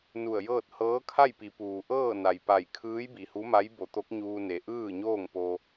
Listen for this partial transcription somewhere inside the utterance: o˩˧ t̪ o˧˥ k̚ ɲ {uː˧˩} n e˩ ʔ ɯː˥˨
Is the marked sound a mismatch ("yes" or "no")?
yes